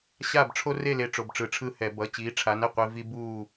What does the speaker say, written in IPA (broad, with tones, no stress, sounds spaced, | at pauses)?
ɕ a˦˨ b ʈ͡ʂʰ o˦ r e˦˨ l e˨˦ ʈ͡ʂ o˩˧˩ b ʈ͡ʂ ɯ˧˩˧ ʈ͡ʂʰ ɯ˦˨ h ɛ˧˩˧ b ʌ˩˧˩ t͡ɕ iː˨˦ ʈ͡ʂʰ a˨˦ n ɛ˩ qʷ e˦ v i˦ b uː˦˨